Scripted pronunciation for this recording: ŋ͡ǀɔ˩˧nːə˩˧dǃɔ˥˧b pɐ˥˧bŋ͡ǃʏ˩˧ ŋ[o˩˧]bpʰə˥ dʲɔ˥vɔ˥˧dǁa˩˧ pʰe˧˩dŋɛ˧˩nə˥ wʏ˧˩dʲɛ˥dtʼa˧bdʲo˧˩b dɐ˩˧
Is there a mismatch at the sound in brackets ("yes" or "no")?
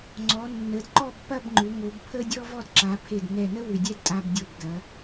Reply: no